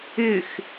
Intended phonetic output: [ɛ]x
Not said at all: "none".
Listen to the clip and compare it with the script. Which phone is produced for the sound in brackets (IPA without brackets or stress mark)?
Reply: ɪ